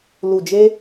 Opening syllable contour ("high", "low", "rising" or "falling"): low